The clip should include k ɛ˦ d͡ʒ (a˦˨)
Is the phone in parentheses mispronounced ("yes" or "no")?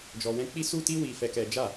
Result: no